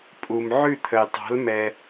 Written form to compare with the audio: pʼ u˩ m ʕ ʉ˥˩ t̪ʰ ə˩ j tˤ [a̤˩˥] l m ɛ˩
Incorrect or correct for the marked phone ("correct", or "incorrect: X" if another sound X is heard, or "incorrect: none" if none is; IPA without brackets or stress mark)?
correct